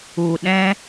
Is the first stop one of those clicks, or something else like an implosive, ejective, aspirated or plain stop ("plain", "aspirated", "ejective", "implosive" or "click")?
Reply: implosive